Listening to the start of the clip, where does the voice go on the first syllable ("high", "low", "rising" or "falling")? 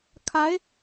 rising